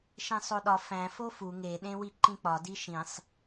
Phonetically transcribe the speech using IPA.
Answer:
ʃẽsˤoɗɒ fæ̃ fofu ŋe ɗẽwiǃĩk͡pɒ diʃĩsˤ

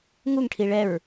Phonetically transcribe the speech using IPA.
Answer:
ŋuŋʈʰi ɭɛɹ

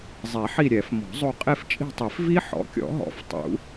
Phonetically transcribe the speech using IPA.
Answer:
zˤɛ˨˩˦ħi˦˨ ɾʲɛ˨˩˦fmɔ̤˨˩˦zˤo˦˨ qʼe˦˨ft͡ʃʼi̤˦˨tˤi˨˩˦fvi˦˥ ħɔ̰˩˥kʲɔ̰˨˩˦ɦɔ̰˨˩˦f tˤṵ˨˩˦

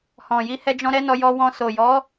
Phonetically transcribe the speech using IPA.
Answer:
hɔ̃˨ji˧ hɛ˧d͡ʒɔ̃˧ ɾɛ˦nɔ˧jɔ˧wɔ̃˧ so˨jɔ˨˦

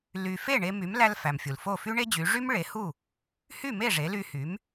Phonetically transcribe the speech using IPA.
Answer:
ly˧ fe˥˩ɳe˧ my˩˥mlæ˧lfæ˩m fʲu˩l fo˥˩fy˥ɳe˥d͡ʑy˩˥ ʐy˥m ɭe˩˥hu˥˩ | hy˥˩me˥˩ ʐe˩˥ly˧hy˩˥m

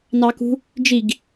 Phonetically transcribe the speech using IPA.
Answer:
nɑkṳ | d͡ʒiɡ

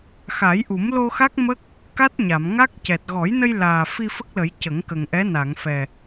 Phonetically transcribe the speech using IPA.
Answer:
xa˨˩˦jʔu˨˩˦mlo˧xa˦˥k̚ mə˦˥k̚ | ka˦˥t̚ɲa˨˩˨mŋa˦˥k̚ cɛ˨˩t̚ɣɔ˨˩˦jnə˧jlaː˨˩ fi˧fə˦˥k̚lə˨˩˦j cə˨˩˦ŋkə˨˩ŋʔɛ˧˥ na˨˩˨ŋfɛ˨˩

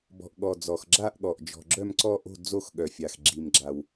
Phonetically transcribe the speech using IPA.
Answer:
bɔ̤˨ʔɠɔ˨ d͡zɔ˨xɡ͡ǁa˥˧ʔɠɔ˨ʔ d͡ʒɔ̤˨ɡ͡ǁœ˥˧mǀɔ˥˧ʔo̤˥˧ d͡zo˥˧x ɠœ˨fʲa˨x ɡ͡ǁi˨mɡ͡ǁa˨w

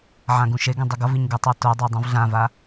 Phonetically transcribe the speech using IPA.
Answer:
ʕãɡũʃeɡɛ̃ dˤɯɡʌviɲ ɡɯtˤa todˤo dˤũvɮãva

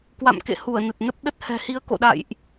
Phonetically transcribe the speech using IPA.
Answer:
kwa̰˧˨mkḛ˧˨ hu˧˩ə̯nə˨˩t̚nə˦˥p̚ ɗə˦˥t̚hɛ̤˨˩hi˨˦ə̯ ko̰˧˨ ɗa̰˧˨jʔ

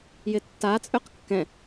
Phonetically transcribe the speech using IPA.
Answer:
jɪtːa t͡sʼøqkːɛ̃

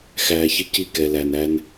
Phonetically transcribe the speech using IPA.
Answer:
xæː˧çɪ˦ci˦˨ kɛ˨læ˨næ˧n

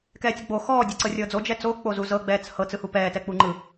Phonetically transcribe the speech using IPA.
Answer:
kɛːtʲoɡ͡bo xɔː dʲɤǀɤrʲɤːd͡zo d͡ʒɛt͡so k͡pozuzɤ ɡ͡bɛːt͡shɤ t͡sɯhupɛː tɛk͡puŋ͡ǃɯ

